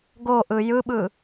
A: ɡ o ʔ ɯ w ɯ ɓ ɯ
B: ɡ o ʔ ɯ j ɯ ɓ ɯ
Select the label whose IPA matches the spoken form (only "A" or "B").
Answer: B